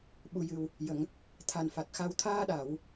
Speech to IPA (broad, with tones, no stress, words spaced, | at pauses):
ɓu˨˩jɨ˨˩w | jə˨˩˨ŋ | t̪ʰa˨˩nfa˨˩t̚xa˧w t̪ʰaː˧ɗa˨˩˨w